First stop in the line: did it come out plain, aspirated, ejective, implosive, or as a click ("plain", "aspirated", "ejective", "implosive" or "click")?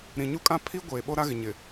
ejective